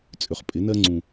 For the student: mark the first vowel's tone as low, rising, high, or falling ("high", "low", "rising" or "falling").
low